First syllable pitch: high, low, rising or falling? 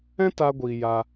high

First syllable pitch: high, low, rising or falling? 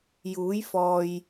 rising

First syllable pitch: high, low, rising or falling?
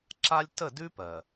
high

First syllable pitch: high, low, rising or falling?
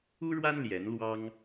high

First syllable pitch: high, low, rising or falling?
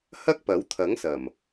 high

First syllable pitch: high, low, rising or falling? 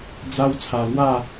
high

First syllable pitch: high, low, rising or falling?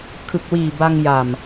low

